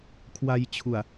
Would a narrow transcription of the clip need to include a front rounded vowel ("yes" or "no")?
no